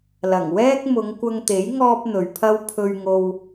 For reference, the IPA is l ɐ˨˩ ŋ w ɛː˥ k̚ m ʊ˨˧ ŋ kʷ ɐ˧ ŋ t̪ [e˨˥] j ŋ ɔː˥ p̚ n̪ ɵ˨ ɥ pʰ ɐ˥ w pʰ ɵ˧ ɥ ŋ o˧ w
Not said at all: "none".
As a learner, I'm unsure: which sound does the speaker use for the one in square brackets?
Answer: e˨˥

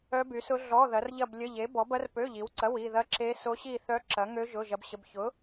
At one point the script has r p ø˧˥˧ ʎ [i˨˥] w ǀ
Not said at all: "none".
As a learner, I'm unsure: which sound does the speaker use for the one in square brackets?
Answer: i˨˥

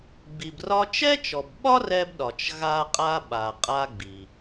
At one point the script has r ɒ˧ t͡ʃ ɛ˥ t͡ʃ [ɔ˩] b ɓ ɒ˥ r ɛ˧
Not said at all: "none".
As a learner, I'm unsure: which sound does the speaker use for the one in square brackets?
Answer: ɔ˩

